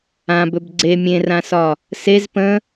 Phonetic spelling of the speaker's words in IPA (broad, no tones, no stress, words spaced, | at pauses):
ãbɵb ɡ͡ǀe mʲẽrãsɒ | sez pə̃